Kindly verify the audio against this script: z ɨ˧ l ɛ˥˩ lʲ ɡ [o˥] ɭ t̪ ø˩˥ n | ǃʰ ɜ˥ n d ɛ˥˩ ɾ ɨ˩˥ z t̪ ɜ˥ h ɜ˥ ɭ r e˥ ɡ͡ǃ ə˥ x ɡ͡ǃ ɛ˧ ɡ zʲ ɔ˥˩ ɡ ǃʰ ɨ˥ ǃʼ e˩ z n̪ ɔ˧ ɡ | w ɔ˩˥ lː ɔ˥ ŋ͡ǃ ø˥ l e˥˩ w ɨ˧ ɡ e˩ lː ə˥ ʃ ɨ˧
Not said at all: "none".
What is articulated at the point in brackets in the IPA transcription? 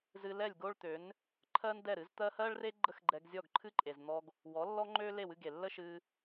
o˥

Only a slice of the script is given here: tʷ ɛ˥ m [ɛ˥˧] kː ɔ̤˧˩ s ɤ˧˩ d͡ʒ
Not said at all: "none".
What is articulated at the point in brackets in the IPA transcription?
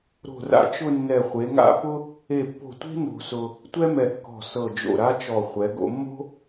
ɛ˧˩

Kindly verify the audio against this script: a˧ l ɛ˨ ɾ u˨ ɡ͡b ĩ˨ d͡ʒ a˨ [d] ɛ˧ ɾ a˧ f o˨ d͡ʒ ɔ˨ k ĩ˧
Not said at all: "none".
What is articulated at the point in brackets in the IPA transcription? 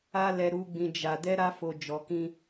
d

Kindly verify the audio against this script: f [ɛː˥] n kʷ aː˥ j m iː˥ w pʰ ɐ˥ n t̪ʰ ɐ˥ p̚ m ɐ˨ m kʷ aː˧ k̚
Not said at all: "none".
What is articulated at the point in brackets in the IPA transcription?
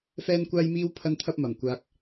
ɛː˥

